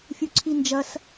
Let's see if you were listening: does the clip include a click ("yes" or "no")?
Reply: yes